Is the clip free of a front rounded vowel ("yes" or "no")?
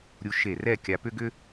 no